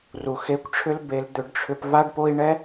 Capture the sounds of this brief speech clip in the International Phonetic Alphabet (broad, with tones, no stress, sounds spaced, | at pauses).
r u˨ x e˧ kʷ ʈ͡ʂʰ ʏ˦ l b e˧ l d̪ ʏ˧ ɖ ʈ͡ʂʰ ʏ˧ p v a˦ ɖ p o˦ i̯ ɳ ɛ˦